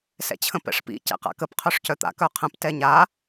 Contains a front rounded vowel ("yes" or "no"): yes